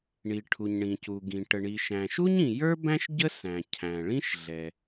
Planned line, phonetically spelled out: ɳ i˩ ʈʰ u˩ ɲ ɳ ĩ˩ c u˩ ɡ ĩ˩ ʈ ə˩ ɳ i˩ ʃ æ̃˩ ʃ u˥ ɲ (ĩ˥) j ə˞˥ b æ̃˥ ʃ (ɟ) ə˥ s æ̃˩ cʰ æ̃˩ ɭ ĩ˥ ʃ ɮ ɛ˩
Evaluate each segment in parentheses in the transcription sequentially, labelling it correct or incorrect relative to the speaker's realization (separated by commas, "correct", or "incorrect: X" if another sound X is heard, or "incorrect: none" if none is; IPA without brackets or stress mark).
incorrect: ĩ˩, correct